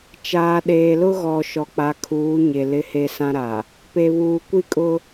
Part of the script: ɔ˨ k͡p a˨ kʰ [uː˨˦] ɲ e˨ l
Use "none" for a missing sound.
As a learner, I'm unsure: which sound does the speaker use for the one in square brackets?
uː˨˦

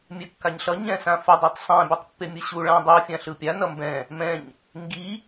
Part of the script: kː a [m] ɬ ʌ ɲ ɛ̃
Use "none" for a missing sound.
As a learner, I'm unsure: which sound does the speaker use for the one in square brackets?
ɲ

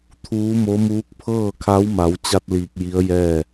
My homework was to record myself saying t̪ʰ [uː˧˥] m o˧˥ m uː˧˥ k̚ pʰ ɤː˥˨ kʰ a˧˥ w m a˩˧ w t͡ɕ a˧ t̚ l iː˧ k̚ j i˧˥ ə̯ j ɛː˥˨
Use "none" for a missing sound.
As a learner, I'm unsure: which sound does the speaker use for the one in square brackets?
uː˧˥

